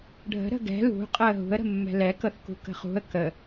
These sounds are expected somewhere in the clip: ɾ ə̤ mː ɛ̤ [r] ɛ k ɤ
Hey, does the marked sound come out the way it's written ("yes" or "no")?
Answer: no